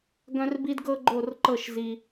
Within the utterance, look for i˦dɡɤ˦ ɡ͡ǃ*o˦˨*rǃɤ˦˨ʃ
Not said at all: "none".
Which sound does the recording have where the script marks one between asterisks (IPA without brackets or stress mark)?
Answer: o˦˨